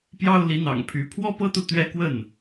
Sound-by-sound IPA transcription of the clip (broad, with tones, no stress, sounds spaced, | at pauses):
p j ɑ˦ ʊ̯ l i˨˦ n̪ ɑ̰˨˩ ŋ pʰ y˨˦ pʰ w ɔ˦ p ɤ˦ t̪ u˨ t̪ ɥ ɛ˦ k w ə˥˨ n